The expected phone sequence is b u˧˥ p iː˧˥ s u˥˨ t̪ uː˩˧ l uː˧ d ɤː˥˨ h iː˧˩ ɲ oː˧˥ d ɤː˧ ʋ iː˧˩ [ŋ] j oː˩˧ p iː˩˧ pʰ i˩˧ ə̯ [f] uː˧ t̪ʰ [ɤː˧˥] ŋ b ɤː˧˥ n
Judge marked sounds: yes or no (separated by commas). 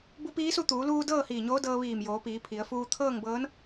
no, yes, no